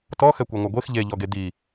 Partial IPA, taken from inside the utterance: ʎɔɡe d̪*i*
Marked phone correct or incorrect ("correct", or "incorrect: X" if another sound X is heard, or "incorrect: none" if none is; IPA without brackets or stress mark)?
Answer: correct